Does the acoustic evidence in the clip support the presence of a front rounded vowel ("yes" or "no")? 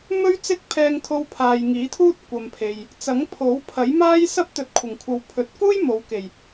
no